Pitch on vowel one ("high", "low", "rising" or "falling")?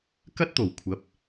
high